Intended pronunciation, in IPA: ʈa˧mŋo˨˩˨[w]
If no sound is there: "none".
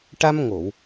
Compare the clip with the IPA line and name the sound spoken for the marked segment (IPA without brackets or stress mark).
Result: w